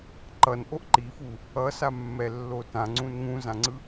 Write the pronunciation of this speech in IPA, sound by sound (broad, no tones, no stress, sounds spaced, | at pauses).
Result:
ǃ ʌ n ʔ o ʔ ǃ i f u | ʌ s a mː ɛ lː o t ã ŋ͡ǀ ũ n ŋ ũ z ã ŋ͡ǀ ɯ